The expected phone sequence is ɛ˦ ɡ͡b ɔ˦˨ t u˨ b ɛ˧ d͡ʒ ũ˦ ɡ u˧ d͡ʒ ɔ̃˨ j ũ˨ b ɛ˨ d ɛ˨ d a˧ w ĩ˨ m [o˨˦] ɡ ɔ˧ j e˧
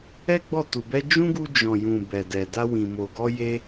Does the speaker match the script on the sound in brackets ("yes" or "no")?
no